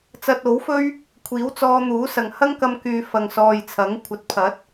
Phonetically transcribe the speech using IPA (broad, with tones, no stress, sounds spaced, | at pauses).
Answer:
t͡s ɐ˧ t̚ o˨˥ w f ɵ˥ ɥ | kʷʰ iː˨˥ w t͡s ɔː˧ n̪ uː˨˥ s ɐ˨ ŋ h ɐ˥ ŋ k ɐ˧ m k yː˨ f ɐ˨ ŋ s ɔː˨ j t͡sʰ ɐ˨˥ ŋ kʷʰ ɐ˨ t̚ pʰ ɐ˨˥ t̚